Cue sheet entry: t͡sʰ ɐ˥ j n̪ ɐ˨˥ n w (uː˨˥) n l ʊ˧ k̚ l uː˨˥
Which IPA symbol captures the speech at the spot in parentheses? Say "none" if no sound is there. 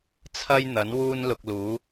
uː˥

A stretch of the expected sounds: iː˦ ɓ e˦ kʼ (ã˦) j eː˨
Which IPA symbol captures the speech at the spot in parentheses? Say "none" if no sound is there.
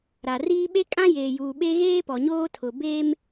ã˦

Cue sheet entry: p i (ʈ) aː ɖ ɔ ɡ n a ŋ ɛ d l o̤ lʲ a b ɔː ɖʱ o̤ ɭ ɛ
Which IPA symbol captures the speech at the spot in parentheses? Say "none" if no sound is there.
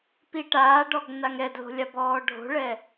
ʈ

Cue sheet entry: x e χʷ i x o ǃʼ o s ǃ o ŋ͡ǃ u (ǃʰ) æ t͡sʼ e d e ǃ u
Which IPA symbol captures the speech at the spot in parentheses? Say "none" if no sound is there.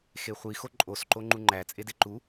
ŋ͡ǃ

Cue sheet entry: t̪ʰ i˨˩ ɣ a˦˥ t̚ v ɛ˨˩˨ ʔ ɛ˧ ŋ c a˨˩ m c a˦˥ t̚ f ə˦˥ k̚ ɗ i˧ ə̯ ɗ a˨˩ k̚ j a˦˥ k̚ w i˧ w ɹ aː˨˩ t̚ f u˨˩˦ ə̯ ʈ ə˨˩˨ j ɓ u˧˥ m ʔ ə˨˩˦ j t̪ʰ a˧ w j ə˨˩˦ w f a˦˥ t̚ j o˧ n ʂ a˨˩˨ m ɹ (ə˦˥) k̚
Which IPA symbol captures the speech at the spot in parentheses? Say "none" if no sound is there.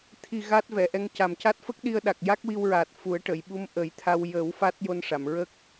ə˦˥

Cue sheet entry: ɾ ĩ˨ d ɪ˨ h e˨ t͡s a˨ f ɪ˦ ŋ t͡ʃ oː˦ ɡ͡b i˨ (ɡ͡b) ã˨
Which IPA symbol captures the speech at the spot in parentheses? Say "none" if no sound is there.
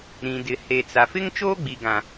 ɡ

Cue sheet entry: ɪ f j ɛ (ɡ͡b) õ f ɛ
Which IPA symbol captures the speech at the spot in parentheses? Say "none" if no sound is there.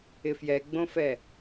ɡ͡b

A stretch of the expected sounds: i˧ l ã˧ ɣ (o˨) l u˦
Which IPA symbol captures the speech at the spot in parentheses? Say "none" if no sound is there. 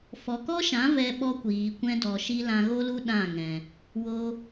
o˦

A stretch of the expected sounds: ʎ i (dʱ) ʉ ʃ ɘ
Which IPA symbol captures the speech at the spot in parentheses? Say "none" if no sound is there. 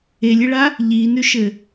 n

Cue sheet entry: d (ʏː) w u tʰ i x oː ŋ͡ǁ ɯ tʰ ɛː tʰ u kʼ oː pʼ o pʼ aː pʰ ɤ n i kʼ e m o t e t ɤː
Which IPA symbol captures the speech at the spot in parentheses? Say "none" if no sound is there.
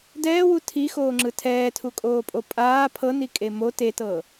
ɛː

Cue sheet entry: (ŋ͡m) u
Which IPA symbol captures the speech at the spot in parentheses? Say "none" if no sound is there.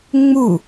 ŋ͡m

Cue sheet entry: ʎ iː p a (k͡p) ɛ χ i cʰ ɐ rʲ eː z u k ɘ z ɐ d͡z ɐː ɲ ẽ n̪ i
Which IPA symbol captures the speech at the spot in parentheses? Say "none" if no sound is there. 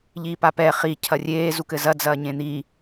p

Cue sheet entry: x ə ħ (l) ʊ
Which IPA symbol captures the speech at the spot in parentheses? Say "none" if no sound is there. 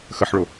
ɭ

